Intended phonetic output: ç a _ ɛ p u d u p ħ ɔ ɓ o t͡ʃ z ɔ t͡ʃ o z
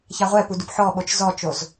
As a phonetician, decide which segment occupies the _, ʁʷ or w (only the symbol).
ʁʷ